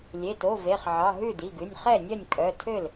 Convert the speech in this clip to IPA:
lʲ e˩˧˩ t o˩˧˩ v e˩˧˩ χ ʕ ɑ˩˧˩ ɦ ʉ˥˩ d i˩˧˩ ɡ ʉ˩˧˩ nʲ χ ɛ˥˩ nʲ œ˥˩ nʲ kʼ œ˩˧˩ tʰ ø˥˩ l

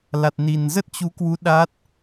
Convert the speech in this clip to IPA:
l a˨˩ t̚ n i˨˩ n z ə˦˥ t̚ t͡ɕ u˨˦ k w u˨˦ ɗ a˦˥ t̚

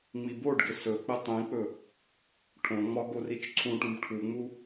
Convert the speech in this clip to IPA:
ŋ͡m i b o ɖ ɡ ɪ s ɵ k͡p ɪ tˤ ĩ k͡p ɵ | ʈʰ õ ŋ͡m ɒ ɡ o r i t͡ʃ ǀʰ ũ ʈ ũ b ʈʰ u ŋ͡m u

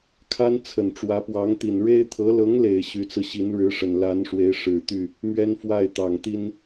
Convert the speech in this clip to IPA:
kʰ a˥ n t͡sʰ ə˨˩ n ʈ͡ʂ w ä˧˥ p w ɑ˧˥ ŋ t̪ i˨˩ n ɻ e˥ ɪ̯ t̪ʰ ɤ˧˥ l ɤ˧˥ ŋ l e˨˩ ɪ̯ ɕ y˧˥ t͡s ɹ̩˧ ɕ i˧˥ n ɻ ɻ̩˧˥ ʂ ə˨˩ n l a˧˥ n ʂ w e˧˥ ɪ̯ ʂ ɻ̩˨˩ t̪ y˥˩ | m ɥ ɛ˥ n f w a˥˩ ɪ̯ t̪ ɑ˨˩ ŋ t̪ i˥ n

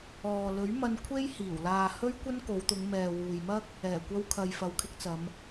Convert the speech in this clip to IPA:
ɔː˨ l ɵ˨˥ ɥ m ɐ˧ n kʷʰ e˥ j h iː˨˩ w l aː˨ h ɵ˥ ɥ kʷ ɐ˥ n k o˨˧ w t̪ ʊ˨˧ ŋ m ɛː˨ w uː˨ j m ɐ˥ k̚ | ɛː˨˩ kʷ ɐ˧ w kʰ ɐ˨ j f ɐ˨ w kʰ ɪ˧ k̚ t͡s ɐ˨˧ m

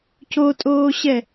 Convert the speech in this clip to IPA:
c o tʼ oː ɕ ɛ

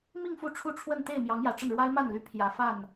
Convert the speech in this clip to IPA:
m i˥˧ ŋ f u˥˧ ʈ͡ʂʰ u˥˧ ʈ͡ʂʰ w ə˥˧ n t̪ e˥˩ ɪ̯ m j ɑ˧˥ ŋ j ä˨˩ ʈ͡ʂ ə˥˩ n ɻ w a˥ ɪ̯ m a˥˩ n l y˧˥ pʰ j ä˨˩ f a˥˩ n

